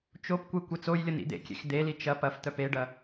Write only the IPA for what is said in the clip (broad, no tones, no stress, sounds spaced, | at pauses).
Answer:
t͡ʃ o p kʷ e kʷ e t͡s o j lʲ ə n ḭ d̪ ḛ kʲ ḛ x d̪ e l i t͡ʃ ɐ p ɐ f t̪ œ p e ɖ ɐ